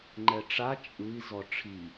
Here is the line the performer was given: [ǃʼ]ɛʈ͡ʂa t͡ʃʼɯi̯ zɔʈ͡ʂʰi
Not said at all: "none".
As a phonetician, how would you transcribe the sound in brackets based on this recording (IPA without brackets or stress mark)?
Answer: ŋ͡ǃ